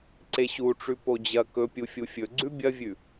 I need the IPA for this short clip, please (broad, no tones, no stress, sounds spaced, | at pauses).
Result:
ǀ e ɕ u ʈ͡ʂ ʉ p o d͡ʑ ɐ k ɵ pʲ u fʲ u fʲ ɵ ɡ͡ǀ ʉ bʲ ɐ vʲ ʉ